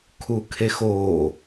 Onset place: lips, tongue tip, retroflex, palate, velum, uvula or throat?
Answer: velum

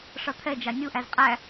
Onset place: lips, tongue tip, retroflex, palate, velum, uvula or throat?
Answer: retroflex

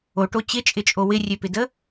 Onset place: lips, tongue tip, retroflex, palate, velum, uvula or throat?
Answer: retroflex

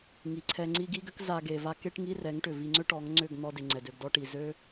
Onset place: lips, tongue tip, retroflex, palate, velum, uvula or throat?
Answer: velum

